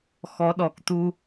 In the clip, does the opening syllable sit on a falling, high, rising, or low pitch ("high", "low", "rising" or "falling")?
rising